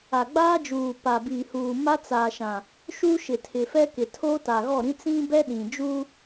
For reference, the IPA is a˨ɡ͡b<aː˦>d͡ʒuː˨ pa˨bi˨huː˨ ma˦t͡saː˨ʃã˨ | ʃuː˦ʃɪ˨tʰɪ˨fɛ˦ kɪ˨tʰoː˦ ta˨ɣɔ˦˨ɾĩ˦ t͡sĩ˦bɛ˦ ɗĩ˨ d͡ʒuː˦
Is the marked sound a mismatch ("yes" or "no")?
no